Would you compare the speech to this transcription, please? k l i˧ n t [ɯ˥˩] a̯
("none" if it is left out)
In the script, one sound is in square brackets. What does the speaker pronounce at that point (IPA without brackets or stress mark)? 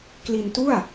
u˥˩